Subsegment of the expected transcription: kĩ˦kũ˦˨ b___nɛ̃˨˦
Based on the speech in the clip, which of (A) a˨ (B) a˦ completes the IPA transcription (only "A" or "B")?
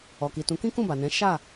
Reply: A